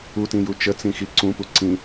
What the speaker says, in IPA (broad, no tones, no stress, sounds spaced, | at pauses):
u t ĩ j u t͡ʃ ə t͡s ĩ x i ǀ ũ p u ǀ ĩ